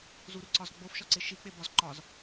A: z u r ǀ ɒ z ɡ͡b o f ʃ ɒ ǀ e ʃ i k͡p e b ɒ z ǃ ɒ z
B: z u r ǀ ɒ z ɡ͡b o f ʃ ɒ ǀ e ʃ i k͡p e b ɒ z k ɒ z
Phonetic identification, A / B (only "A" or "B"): A